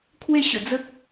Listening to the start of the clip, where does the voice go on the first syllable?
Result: falling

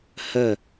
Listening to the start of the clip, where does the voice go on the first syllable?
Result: falling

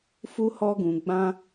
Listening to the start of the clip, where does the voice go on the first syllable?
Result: high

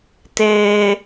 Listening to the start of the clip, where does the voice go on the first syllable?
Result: low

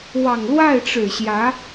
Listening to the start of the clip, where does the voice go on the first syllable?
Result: low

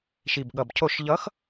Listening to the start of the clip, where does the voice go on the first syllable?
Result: low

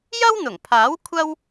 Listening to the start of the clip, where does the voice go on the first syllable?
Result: high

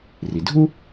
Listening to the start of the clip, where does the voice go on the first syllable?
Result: low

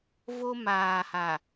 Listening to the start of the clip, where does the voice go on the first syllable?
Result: high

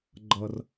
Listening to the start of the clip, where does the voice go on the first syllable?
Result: high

